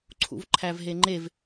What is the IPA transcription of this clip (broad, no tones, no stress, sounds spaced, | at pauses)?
ǀʰ ṵ v ǃʰ æ v ɦ e ŋ͡ǃ e v